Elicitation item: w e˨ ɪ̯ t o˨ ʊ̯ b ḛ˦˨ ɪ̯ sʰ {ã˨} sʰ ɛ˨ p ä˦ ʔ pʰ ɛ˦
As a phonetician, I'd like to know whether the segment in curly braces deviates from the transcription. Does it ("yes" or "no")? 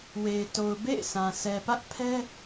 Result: no